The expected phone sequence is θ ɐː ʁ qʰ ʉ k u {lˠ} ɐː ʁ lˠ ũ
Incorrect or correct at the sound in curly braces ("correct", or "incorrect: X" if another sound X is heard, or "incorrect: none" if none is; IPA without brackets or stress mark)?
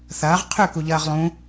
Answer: incorrect: ʎ